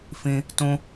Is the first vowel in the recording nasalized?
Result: yes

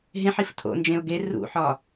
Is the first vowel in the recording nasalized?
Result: yes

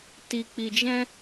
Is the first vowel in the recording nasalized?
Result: no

